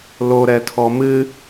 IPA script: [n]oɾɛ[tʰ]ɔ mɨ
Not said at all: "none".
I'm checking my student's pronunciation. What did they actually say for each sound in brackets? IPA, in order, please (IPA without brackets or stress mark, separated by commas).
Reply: l, tʰ